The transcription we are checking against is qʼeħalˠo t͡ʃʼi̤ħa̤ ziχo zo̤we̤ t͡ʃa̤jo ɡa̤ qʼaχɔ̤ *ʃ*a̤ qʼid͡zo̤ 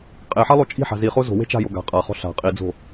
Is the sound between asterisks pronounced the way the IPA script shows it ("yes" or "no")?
no